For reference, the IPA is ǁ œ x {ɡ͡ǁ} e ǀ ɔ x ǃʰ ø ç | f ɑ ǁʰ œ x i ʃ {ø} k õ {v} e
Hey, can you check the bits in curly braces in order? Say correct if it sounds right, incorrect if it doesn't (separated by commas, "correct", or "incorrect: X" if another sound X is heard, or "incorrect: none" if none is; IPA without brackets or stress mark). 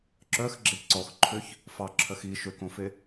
correct, correct, incorrect: f